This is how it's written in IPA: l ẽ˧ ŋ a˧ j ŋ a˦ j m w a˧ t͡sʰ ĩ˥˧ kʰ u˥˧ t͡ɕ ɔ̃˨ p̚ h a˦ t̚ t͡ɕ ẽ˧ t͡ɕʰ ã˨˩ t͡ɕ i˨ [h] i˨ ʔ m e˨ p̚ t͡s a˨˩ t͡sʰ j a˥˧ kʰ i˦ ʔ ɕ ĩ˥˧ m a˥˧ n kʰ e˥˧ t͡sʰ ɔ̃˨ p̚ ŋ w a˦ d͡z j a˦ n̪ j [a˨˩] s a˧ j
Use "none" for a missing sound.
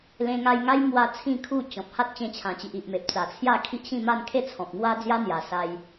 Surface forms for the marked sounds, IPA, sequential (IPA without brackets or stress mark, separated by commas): ʔ, a˨˩